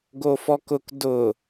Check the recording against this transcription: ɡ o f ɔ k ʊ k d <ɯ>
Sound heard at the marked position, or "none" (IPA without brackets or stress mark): ʊ